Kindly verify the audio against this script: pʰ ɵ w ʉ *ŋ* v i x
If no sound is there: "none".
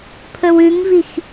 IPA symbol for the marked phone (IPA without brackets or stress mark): ŋ